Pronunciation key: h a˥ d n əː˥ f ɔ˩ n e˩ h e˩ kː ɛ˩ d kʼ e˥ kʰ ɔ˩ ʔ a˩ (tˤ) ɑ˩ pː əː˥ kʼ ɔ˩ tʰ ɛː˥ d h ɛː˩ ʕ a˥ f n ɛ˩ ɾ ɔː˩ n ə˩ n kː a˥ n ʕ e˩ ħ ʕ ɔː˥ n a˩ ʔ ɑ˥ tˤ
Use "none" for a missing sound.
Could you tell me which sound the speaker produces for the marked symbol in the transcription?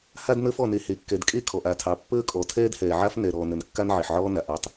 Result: tʰ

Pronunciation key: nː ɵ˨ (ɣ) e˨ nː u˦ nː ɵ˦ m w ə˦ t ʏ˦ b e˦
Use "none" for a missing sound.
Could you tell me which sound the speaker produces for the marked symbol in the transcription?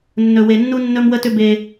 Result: w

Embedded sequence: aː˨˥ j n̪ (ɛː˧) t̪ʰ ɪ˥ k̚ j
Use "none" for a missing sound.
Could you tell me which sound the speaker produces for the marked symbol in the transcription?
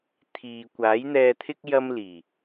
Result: ɛː˧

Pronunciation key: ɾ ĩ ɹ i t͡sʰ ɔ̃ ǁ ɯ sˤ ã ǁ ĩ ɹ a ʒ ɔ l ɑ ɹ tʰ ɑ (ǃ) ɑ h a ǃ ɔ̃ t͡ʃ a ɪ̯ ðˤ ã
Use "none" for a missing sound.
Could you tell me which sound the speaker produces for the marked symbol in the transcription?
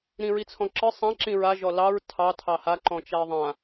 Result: tʰ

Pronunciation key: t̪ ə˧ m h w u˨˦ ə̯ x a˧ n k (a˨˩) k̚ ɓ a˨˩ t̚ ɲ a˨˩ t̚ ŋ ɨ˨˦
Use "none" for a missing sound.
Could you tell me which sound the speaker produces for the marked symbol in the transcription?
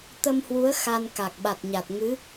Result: a˨˩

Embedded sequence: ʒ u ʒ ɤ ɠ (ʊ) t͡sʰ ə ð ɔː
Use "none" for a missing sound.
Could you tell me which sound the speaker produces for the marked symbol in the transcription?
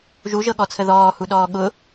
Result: ɔ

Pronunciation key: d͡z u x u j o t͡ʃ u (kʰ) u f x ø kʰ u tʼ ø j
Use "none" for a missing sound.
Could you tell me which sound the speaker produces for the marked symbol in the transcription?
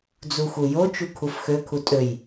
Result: kʰ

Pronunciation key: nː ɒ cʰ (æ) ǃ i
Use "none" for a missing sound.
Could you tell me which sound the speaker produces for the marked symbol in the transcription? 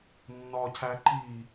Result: æ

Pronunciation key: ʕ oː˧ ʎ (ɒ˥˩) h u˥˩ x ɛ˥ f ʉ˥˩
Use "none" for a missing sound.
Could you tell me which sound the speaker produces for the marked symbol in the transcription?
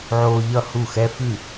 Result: ʌ˥˩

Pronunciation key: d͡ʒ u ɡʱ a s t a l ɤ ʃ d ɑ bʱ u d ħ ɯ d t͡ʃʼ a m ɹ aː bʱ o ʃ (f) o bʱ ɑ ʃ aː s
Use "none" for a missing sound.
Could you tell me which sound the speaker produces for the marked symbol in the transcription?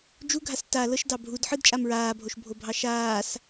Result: bʱ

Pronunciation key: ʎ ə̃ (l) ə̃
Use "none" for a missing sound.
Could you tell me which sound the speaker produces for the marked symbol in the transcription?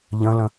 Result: l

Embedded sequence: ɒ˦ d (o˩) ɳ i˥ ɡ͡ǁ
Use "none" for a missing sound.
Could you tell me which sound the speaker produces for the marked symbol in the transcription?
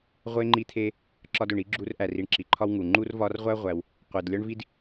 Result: o˩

